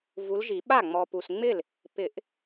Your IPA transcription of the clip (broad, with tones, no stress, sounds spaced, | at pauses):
v u˨˦ l ʒ i˨˩˦ ɓ a˥˩ ŋ͡m ɔ˨ p u˨ s ŋ͡m ɪ˥˩ l | p ɪ˨˩˦ ʔ